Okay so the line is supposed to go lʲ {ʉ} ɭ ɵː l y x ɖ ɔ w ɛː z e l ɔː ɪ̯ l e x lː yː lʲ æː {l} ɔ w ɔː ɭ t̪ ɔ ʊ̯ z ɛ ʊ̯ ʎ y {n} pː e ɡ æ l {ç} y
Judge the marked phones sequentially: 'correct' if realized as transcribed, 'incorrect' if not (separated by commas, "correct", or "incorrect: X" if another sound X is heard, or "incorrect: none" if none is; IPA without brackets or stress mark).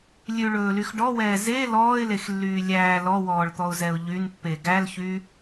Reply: correct, correct, correct, correct